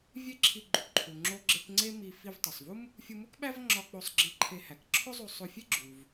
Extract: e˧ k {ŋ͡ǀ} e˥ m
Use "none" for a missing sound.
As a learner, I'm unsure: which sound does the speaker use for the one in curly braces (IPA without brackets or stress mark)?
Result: ŋ͡ǀ